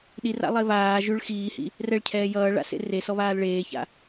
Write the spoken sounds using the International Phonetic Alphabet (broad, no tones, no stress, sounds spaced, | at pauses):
ɗ i r a̰ lˠ e β aː ʒ ʉ ɭ x iː h ḭ | r ɛ ɭ cʰ ɛː j ʌː ɭ a̰ s ḛ r e s ɔ β aː l ɭ eː ç a̰